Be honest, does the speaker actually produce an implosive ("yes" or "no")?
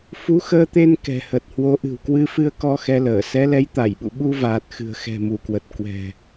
yes